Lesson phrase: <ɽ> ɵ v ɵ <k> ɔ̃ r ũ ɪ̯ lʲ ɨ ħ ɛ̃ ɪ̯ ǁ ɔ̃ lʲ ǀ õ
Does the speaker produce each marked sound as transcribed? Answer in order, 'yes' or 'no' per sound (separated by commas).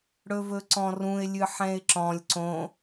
yes, no